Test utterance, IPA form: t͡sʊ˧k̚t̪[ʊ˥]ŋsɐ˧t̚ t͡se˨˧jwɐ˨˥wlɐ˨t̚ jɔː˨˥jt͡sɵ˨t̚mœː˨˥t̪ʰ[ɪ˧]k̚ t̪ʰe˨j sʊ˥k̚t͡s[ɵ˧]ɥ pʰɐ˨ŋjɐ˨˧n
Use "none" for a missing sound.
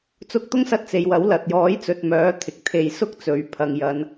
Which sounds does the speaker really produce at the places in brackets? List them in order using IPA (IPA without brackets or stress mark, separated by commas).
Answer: ʊ˥, ɪ˨, ɵ˨˥